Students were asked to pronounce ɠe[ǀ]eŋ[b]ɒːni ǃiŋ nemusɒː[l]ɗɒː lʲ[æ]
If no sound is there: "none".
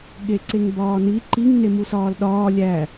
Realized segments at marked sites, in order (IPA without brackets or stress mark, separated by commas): ǀ, b, l, æ